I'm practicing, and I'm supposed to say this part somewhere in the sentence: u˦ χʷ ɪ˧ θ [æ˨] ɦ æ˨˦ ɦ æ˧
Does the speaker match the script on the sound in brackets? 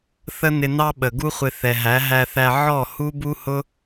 no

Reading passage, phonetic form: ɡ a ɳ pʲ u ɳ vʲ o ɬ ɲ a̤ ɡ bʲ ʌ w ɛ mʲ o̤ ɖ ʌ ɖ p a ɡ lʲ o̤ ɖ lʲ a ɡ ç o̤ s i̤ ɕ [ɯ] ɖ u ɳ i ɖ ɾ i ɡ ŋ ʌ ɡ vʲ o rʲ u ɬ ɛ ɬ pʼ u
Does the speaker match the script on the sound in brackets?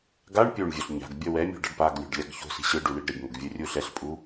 yes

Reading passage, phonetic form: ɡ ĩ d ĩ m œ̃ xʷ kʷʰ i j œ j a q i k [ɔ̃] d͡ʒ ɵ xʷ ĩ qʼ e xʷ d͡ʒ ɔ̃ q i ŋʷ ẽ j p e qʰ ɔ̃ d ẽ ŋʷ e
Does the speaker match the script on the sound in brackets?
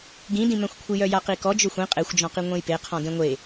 no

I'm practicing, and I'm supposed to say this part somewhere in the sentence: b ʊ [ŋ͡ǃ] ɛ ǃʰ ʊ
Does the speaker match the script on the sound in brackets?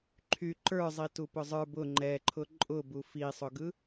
yes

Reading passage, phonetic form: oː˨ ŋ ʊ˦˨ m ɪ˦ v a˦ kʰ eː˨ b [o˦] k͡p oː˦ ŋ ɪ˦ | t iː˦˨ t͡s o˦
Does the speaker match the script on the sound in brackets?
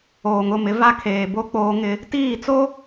yes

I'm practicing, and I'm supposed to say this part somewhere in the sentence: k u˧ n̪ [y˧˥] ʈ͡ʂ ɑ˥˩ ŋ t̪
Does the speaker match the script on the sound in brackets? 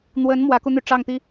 no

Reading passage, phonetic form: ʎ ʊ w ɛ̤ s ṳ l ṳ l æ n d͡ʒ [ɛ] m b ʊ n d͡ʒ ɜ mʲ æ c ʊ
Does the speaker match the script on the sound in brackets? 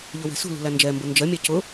yes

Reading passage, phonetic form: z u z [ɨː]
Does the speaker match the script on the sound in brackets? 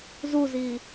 no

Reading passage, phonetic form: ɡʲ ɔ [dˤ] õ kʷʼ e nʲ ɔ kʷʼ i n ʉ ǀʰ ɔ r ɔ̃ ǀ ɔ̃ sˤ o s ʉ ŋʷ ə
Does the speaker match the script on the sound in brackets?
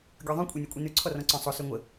no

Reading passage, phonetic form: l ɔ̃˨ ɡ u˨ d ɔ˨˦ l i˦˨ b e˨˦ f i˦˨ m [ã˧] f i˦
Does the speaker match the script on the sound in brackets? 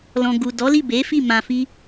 yes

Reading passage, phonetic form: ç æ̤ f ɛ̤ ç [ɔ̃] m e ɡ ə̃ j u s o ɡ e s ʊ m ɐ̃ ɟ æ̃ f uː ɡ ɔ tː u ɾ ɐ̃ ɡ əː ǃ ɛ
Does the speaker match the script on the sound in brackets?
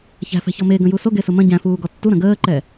no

